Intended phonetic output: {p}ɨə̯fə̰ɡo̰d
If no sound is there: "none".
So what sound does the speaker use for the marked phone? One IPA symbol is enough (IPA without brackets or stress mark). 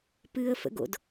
p